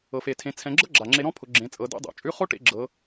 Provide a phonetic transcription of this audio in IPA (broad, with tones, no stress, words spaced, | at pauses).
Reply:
ɤ˩fe˩tʰẽ˩˧ t͡sʰɛ̃˩˧ɡ͡ǁɤ˥ ɡ͡ǁa˩ŋ͡ǁe˧ɾɔ̃˥pʰʊ˩˧ ɡ͡ǁẽ˩˧t͡sʼɤ˩˧dḛ˧˥dˤɛ̰˩ t͡ʃʼʉ˧˥χo˥ʈḛ˧ ɡ͡ǁɤ˩˧